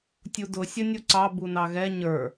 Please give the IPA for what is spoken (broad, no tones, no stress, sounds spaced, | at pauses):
tʲ u d ʊ sʲ ə nʲ u ǀ ɑ b u n ɑ ɣ ɛ ɲ ə˞